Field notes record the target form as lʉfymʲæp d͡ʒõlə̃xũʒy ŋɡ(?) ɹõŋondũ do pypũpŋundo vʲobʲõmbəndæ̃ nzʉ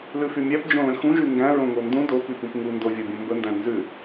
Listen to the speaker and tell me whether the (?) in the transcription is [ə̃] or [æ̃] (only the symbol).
æ̃